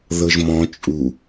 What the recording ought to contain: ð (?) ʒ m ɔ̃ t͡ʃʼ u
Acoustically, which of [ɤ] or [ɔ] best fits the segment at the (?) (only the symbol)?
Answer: ɤ